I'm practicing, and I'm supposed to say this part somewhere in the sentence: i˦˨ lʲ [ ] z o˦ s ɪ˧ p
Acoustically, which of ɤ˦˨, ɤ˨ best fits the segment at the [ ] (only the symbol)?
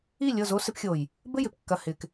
ɤ˦˨